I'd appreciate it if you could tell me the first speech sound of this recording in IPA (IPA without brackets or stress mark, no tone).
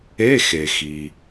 e